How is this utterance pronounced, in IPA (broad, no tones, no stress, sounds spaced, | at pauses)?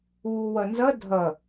uː w ɐ n z ɐ dʱ ɐ